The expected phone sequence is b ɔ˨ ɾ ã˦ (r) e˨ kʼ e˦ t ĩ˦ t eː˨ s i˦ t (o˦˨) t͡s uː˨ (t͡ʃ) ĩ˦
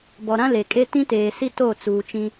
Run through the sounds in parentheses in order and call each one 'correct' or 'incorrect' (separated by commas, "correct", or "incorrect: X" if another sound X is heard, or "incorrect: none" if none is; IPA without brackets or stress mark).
incorrect: l, correct, correct